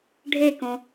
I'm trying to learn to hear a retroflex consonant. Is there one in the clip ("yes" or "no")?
yes